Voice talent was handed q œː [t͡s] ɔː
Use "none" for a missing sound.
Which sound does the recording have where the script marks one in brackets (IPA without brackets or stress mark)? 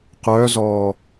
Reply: z